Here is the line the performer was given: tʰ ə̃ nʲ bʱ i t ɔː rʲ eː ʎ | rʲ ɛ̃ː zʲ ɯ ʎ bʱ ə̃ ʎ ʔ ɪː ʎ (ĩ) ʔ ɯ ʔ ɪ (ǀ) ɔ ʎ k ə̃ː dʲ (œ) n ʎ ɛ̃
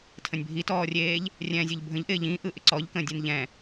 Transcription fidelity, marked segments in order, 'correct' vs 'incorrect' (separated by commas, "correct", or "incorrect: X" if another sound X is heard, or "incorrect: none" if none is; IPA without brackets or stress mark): correct, correct, incorrect: ɛ